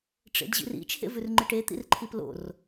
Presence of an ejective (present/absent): absent